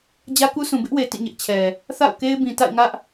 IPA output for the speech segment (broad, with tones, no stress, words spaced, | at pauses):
d͡ʑä˦ku˦sʰũ˨ bɪ˦ʔwe˨ tḭ˦˨ɲɪ˦ʔt͡ɕʰɛ˨ | θa̰˦˨ʊ̯ke˦ɪ̯bĩ˨ ta̰˦˨ɪ̯ŋä˦ʔ